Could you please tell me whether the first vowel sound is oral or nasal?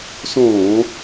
nasal